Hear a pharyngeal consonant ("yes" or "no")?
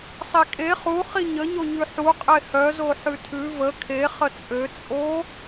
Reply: yes